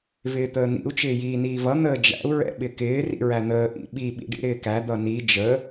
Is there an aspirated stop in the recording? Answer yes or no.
no